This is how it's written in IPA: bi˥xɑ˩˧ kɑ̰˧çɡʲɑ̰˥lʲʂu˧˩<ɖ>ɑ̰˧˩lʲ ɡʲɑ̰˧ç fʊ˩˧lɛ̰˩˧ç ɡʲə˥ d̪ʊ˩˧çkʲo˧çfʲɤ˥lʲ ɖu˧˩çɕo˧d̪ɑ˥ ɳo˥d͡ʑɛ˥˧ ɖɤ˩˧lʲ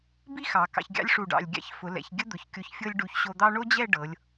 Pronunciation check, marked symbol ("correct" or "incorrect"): correct